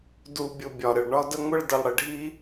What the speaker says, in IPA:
du˨bʲʊ˨ bʲɒ˨ɾɪ˨ɭɳɒ˦ də˦ŋʷɪ˦ɭ də˨lˠɽɪ˨ɖʱi˦

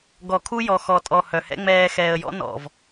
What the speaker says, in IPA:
ɡɔ˨ kʰu˦jɔ˨xɔ˨tʼɔ˨ hœ˨hɛ̰˦ ŋ͡mɛː˨ xɛː˨ə̯ jɔ̰˦ nɔ̰˨v

